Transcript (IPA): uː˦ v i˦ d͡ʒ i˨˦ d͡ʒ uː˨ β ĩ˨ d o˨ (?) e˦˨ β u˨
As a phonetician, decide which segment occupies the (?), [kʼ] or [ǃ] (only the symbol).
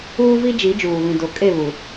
kʼ